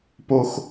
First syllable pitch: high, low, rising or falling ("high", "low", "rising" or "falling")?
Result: high